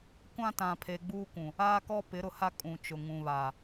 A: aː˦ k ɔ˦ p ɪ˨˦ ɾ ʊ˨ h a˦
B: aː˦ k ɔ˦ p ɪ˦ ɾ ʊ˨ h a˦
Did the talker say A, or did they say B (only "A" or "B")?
A